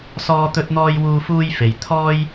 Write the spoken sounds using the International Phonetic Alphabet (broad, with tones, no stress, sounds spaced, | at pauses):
s ɔː˥ t̪ ɵ˥ t̚ n̪ ɔː˥ j w uː˧ f uː˧ j f e˨ j t̪ʰ ɔː˥ j